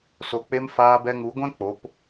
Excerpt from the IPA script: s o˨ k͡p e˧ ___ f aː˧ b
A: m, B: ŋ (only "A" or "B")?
A